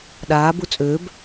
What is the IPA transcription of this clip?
ɗ aː b u t͡sʼ ø b

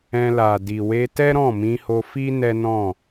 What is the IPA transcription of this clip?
ɛ̃˧ l a˨ d i˨ w e˧ t ɛ˦ ɾ ɔ̃˦˨ m ĩ˧ h o˧ f i˦ n ɛ˦ n ɔ̃˦˨

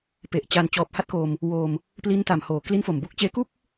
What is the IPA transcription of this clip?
p e˨˩ ʔ t͡ɕ a˧ n t͡ɕ ɔː˨˩ p̚ h a˦˥ t̚ k o˧ m | w o˧ m | p l i˦˥ n t a˨˩ m h oː˨˩ k l i˦˥ n f o˨˩ m b u˦˥ k̚ t͡ɕ eː˦˥ k u˥˩ k̚

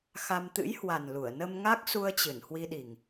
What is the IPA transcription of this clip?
x a˧ m t̪ ɨ̰˧˥ j h w a˨˩ n l u˧˩ ə̯ n ə˧ m ŋ a˦˥ k̚ s u˧ ə̯ t͡ɕ ɨ˧˩ n h w i˧ ɗ i˨˩ ŋ

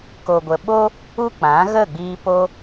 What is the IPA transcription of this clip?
k o˨ ɡʷ ə˨ ɓ o˦ | u˦ k͡p ã˨˦ ɣ ə˦˨ ɡ͡b iː˧ p o˧

